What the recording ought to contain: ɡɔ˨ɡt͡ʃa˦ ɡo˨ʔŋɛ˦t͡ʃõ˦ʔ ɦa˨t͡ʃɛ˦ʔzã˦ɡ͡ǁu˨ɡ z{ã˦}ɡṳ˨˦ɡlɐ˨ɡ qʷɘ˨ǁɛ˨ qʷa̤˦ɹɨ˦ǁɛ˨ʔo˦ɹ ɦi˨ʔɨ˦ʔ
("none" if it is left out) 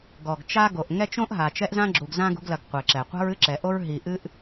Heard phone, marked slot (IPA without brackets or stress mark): ã˦